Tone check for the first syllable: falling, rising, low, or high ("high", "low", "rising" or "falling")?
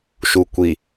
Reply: low